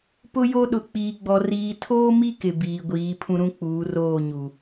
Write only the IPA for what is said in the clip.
pʊ˦jo˦ ɗʊ˨k͡piː˨ɡ͡bɔ˨ riː˨tʰoː˦mi˦ kɪ˨ biː˨ ɡʷiː˨˦ pʰũ˦ɾũ˦k͡puː˨˦ roː˦˨ɲu˨

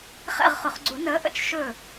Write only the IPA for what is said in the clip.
χɛ̰˥˨ʁχʊ˨˩˦χ ɡ͡ǀu˨˩˦nəː˨˥ ʔə̰˦t͡ʃ ʃɵ˥˨

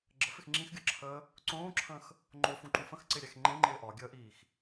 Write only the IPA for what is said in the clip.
ɡ͡ǁəfɪx ŋ͡ǁĩxɡʲɤǁʰəː | ǀõːǁʰə̃ːx | ŋ͡ǃofũǃũ fə̃xǀɪɾʲɛx ŋ͡ǃẽŋ͡ǃɪː ʔɒɡʲəːʔiːx

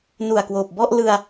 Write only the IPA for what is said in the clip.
nu˨˩a̯kwoː˨˩p̚bɔ˥˩ʔlɯ˧a̯

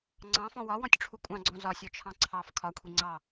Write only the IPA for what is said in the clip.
ŋ͡ǀɑ̃fɔ̃ wɒwɔ̃tʲʈ͡ʂʰu kʷʼɑ̃ɡ͡ǀɔ̃ zɒsʲɔt͡ʃʰɑ̃ ǀʰɑf kʰɒkʷʰi ŋ͡ǀɑ

